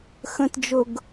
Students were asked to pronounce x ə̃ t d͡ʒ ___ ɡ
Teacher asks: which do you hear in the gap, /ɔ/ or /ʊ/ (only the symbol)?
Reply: ʊ